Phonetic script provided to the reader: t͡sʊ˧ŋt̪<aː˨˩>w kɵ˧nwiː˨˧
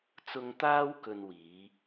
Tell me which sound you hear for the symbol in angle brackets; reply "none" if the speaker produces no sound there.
aː˥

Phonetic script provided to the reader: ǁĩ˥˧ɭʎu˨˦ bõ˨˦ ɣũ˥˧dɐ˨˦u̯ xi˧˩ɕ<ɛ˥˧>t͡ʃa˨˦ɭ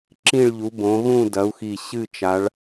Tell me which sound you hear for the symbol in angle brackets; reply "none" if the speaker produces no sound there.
ɨ˥˧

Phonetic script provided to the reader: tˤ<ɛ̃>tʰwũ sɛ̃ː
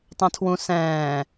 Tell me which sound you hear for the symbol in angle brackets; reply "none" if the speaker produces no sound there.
ɛ̃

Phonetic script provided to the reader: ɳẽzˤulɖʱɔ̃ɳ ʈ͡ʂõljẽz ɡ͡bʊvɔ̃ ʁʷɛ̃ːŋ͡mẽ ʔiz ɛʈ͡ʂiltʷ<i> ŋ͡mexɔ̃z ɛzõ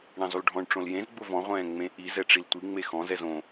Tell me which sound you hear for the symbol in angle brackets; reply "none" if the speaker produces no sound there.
i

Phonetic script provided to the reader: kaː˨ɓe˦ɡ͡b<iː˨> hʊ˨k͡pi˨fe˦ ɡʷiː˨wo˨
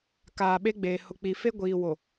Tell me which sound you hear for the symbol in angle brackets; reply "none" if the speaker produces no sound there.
eː˨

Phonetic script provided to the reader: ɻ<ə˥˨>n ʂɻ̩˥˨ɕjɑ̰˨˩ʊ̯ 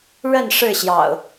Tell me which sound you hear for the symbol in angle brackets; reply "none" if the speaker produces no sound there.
ə˥˨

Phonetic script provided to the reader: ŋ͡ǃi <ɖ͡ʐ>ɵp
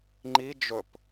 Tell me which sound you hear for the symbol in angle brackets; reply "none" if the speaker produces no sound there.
d͡ʒ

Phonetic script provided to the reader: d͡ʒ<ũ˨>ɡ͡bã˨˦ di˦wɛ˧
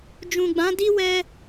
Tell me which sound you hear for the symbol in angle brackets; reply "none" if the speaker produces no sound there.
ũ˨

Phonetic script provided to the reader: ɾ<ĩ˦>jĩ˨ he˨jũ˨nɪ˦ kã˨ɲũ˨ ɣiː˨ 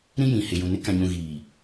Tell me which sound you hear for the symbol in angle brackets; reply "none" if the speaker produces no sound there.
ĩ˦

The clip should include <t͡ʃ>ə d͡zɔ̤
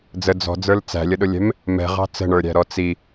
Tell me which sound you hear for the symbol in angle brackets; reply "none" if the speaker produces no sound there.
d͡z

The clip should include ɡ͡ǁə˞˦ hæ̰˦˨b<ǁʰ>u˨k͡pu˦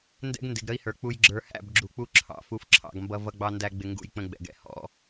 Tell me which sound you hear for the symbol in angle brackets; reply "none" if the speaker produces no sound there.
ɡ͡ǁ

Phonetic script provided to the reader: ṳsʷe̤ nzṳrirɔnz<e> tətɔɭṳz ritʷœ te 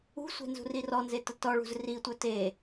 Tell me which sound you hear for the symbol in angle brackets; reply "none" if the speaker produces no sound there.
e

